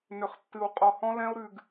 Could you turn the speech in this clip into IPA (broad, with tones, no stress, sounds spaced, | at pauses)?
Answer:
n ʏ˨ χ tː ɨ˨ w qʼ ɔ˨ h ɔ̃˦ l ɛ̃˦ o̯ ɾ ʉ˨ ɡ